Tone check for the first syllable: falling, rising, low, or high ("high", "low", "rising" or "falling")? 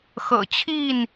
low